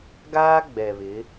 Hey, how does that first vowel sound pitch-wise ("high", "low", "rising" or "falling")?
high